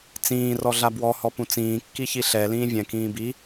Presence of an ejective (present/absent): absent